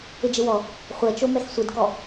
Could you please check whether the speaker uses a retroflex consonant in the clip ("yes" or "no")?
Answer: no